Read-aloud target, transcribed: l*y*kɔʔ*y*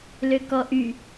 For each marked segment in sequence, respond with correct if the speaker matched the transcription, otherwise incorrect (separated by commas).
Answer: incorrect, correct